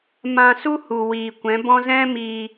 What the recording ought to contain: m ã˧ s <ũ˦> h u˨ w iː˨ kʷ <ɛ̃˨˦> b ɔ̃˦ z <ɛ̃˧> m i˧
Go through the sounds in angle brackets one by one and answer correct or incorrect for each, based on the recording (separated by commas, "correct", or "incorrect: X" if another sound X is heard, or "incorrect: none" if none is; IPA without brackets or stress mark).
incorrect: u˦, correct, incorrect: ɛ̃˦